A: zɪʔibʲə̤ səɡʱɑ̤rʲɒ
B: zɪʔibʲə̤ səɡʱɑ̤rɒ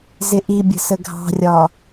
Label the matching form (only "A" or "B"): A